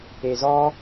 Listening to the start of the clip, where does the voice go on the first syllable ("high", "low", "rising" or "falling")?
low